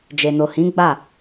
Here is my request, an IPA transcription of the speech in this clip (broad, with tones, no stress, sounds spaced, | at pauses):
d͡ʒ e˨ n o˨ h ĩ˨˦ ɡ͡b a˦˨